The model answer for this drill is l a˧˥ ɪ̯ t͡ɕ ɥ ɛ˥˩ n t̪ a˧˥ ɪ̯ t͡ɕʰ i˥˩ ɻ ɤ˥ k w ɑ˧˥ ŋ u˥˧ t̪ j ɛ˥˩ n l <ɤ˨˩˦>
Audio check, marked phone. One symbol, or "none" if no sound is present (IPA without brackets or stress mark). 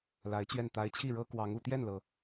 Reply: ɤ˩